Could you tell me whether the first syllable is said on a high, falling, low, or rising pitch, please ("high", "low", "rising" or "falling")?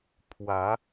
rising